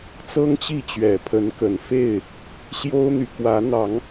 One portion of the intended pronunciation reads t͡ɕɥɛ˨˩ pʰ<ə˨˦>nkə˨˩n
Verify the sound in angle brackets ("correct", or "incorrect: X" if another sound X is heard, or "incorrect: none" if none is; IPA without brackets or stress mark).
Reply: correct